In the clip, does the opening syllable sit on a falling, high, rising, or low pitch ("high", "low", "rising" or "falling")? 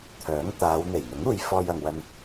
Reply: rising